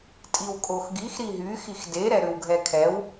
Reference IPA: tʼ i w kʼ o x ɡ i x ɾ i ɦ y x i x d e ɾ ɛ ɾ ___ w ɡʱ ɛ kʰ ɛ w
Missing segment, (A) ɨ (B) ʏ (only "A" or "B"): B